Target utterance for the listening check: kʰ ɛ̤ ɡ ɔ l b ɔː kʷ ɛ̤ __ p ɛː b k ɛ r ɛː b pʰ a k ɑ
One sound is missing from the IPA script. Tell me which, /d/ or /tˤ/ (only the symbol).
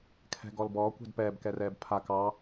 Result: d